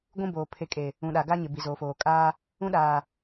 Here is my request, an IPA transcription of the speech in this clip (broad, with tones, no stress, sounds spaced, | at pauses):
ɡʷ ũ˦ b oː˨ pʰ e˨ kʼ e˨ | ũ˨ ɗ a˨ ɡ a˦ ɲ ɪ˨ b i˨ z oː˨ f oː˨ kʼ aː˦ | ũ˦ ɗ aː˨